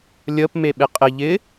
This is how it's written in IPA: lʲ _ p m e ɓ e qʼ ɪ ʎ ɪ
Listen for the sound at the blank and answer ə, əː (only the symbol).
əː